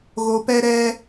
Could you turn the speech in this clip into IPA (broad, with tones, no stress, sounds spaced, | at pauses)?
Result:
ɣ o˧ p ɛ˦ ɾ ɛ˦